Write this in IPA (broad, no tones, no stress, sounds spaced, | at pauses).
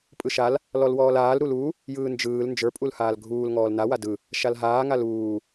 pʼ ɯ ʃ a l | l ɔ l w ɔː l aː l ɾ u l u | j ɯː n d͡ʒ ɯː l n d͡ʒ ə˞ pʼ u l h aː l ɡʱ uː l ŋ ɔː l n a w a d ɯ | ʃ a l ɦ aː ŋ a l uː